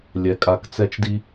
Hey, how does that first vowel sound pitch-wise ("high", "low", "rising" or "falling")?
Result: rising